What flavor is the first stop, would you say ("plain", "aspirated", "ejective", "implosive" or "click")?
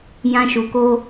plain